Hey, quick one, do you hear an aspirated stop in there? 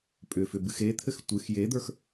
yes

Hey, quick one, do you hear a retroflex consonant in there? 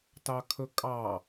no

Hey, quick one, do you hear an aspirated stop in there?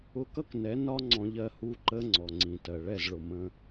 no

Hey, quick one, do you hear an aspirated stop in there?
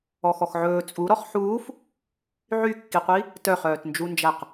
no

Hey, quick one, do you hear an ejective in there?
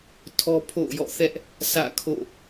no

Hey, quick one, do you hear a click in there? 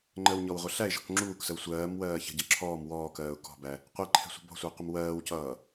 yes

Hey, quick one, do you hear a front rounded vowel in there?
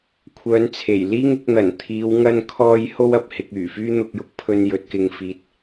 yes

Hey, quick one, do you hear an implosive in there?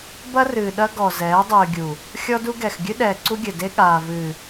yes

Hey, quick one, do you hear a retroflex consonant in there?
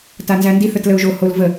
no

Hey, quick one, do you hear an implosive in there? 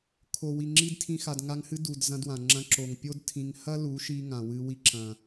no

